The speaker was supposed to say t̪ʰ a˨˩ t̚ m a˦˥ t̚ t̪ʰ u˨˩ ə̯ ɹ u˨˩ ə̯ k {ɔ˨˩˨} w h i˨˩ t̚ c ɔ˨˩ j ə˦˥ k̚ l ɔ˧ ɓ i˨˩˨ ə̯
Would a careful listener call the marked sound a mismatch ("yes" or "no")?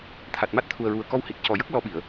yes